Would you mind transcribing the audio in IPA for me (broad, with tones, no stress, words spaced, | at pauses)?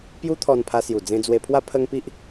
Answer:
pju˦t̪ʰɔ˧npʰa˧ sju˨˩d͡zẽ˧d͡zwe˧pʰwa˦ pʰə˦ŋpi˦ʔ